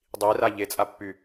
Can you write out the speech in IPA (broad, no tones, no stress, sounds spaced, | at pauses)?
dˤ i r a ʎ e t͡sʼ a pː y